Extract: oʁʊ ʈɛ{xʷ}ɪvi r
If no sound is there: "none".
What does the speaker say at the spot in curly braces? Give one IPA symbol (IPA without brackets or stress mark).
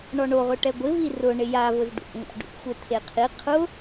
ɡʷ